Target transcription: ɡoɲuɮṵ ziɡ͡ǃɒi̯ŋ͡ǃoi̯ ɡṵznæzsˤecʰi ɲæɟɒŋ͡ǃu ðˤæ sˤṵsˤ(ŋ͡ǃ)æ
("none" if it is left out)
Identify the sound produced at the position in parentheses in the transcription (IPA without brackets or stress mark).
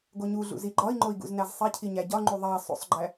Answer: ɡ͡ǃ